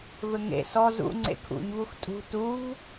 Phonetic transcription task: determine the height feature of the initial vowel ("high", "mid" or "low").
mid